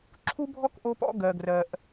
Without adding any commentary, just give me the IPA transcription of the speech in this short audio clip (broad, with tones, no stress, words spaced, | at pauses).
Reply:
ǁʰu˦bʱɔ˦k ʔo˦pɔ̰˦ ɡɜ˨ɡrɜ˨ʔ